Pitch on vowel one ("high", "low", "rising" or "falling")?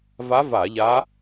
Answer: rising